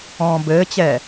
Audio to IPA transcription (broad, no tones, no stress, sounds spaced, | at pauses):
ɔ̃ː b ɘː t͡ɕ ɛ